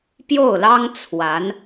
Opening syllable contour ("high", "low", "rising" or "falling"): falling